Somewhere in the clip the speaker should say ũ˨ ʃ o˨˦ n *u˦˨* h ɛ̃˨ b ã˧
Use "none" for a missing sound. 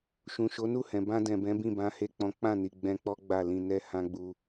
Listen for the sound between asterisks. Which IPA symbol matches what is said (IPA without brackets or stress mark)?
u˦˨